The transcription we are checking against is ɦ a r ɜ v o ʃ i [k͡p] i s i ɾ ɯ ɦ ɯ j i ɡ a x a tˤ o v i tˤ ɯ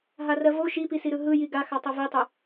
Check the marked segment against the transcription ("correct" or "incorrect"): incorrect